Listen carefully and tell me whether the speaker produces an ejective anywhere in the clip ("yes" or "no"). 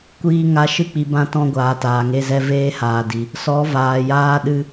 no